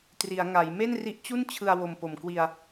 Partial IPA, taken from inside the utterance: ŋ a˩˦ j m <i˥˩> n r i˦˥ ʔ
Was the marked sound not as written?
yes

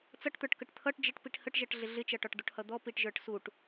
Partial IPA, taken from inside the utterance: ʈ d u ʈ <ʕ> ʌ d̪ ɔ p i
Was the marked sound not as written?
yes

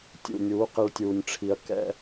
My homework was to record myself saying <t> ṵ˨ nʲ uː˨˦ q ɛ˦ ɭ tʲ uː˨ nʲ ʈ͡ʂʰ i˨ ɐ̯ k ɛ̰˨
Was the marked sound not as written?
yes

